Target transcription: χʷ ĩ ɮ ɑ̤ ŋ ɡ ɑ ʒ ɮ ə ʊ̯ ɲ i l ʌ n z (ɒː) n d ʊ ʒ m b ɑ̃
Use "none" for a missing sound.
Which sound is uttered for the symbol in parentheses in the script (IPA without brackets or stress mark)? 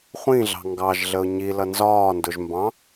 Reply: ɒː